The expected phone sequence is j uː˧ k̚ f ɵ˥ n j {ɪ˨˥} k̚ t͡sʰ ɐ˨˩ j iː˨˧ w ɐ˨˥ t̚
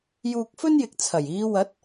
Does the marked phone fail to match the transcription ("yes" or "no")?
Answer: no